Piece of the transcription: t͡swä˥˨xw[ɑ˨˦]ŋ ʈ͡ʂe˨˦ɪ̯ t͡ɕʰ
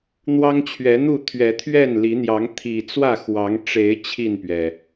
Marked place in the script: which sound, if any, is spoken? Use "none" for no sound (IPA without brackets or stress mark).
ɑ˨˦